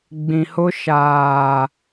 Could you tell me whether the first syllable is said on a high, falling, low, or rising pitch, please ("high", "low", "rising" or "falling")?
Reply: low